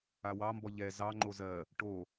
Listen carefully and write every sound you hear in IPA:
a w ɑ m b ɔ ʎ ɛ z ɑ ŋ͡ǃ o z ɜ | ʈ o

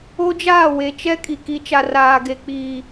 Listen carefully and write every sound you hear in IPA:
o˦ d͡ʒ aː˦˨ w e˨ t͡ʃ ɛ˦ kʼ i˨ k i˨˦ t͡ʃ a˨ r aː˨ ɡ e˨ k͡p iː˨

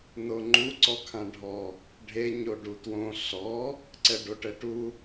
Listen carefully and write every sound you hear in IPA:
n o ŋ͡ǃ u ǀ ɔ kʰ ã ɖʱ ɔ | ɖʱ e ɲ o ɖ u t w õ ɬ ɔ | ǀ ɛ ɖ o ʈ ɛ ʈ u

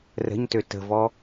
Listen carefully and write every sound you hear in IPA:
r ə̤ ɲ t ø t ə̤ v ɔ

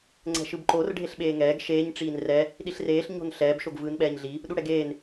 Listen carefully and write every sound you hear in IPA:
ŋ͡ǀ ɛ̤ ʃ ɯ b ǃ o r ɖʱ e ɬ ɓ eː ŋ ɛː ɡ ʃ eː ɲ ʈ͡ʂ iː n r ɛ | ɗ i ɬ r eː ɬ ɲ o̤ n ɬ ɛː b ʃ o ɡ v ɯː n ɓ ɛː ɲ ɮ i | ɗ u ɽ ɛ ɡ eː n

